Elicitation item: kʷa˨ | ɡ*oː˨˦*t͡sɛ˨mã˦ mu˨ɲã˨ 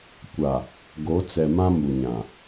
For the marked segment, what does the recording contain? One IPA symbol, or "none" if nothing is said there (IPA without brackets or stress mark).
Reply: o˨˦